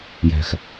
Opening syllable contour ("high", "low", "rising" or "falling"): low